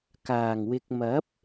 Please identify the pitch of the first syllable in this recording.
low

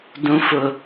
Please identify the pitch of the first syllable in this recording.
low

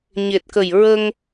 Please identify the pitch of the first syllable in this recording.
low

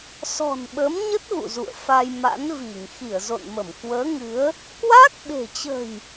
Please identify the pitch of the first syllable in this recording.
low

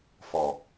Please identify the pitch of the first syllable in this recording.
low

